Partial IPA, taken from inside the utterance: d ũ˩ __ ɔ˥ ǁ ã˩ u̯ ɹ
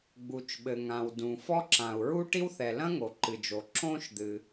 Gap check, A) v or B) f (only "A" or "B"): B